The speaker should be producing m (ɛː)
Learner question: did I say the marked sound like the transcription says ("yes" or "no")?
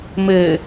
no